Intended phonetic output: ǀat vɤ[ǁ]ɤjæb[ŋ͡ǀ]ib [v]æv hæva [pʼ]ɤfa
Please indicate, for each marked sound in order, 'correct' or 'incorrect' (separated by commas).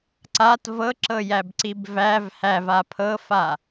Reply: correct, incorrect, correct, incorrect